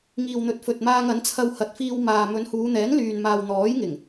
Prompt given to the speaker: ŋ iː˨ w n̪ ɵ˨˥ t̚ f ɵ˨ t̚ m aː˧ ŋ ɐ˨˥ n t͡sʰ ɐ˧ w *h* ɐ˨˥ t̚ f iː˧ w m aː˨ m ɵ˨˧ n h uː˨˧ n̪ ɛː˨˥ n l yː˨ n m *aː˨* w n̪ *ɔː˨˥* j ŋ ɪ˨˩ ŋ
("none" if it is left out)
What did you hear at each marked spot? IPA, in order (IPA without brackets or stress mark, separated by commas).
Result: h, aː˨, ɔː˨˥